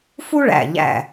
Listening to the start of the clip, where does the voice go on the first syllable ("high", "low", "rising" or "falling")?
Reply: high